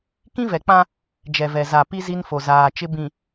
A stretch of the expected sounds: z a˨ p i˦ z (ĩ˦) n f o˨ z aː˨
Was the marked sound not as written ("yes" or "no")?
yes